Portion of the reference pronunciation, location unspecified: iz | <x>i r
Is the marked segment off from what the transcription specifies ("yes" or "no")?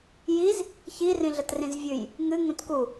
yes